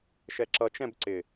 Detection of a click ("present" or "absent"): present